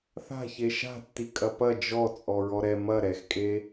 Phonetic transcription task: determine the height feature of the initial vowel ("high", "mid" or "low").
low